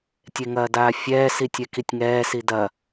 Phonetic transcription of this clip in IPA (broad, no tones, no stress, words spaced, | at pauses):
tʲeŋɐːdaːfʲɛː sitʲɛkitʲŋɛː sidɐ